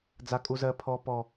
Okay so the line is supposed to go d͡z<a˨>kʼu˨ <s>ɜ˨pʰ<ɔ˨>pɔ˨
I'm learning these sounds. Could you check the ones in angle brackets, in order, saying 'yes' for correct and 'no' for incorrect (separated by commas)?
yes, no, yes